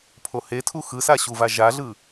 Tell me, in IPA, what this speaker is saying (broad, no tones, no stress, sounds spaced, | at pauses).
pʰ o h e tʰ u x ɯ s a ɕ u v a ʒ a ɮ ɯ